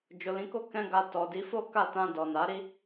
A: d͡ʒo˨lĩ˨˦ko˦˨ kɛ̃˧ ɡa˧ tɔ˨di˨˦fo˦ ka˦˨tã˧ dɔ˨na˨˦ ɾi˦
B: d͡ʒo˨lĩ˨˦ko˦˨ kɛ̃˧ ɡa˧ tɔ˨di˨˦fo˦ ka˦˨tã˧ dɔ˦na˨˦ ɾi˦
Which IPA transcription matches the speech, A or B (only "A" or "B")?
A